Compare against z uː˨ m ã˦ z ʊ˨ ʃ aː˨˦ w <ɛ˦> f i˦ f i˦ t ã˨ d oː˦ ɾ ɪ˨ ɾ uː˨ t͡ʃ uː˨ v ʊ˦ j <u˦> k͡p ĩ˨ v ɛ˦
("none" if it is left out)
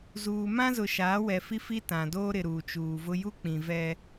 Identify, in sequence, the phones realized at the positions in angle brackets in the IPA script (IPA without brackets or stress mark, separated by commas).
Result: ɛ˨, u˦